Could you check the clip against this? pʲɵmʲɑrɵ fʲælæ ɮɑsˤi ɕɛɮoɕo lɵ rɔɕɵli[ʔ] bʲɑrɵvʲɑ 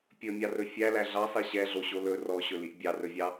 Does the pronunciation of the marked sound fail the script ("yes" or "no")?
no